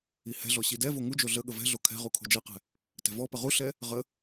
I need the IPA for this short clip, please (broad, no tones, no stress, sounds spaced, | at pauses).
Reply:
i h ɛ̤ ɮ ɔ ɕ i d ɛ v o ŋ u d͡ʒ o ɮ ə ɠ ə v ɛ̤ ɮ o kʰ ɛ̤ ʁ u kʰ o̤ d͡ʒ ɛ q ɛ̤ | t ɛ̤ v ɔ p ə ʁ u ɬ ɛ | ʁ ə